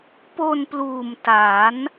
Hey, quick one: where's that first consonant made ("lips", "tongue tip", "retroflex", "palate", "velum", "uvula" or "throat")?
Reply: lips